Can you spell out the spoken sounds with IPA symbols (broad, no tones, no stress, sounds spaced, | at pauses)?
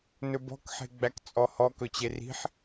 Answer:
n ɵ b ɔ̤ k ħ e̤ ɡ͡b æ k t͡sʼ ɔ h ɔ k ɵ t͡ɕ e r i̤ ħ